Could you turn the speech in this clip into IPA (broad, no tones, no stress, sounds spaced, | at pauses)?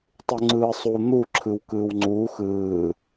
tˤ u ŋ͡ǀ ɯː sˤ u n̪ u ǁʰ ɯ w k ɯː w ŋ͡ǀ uː x ɯː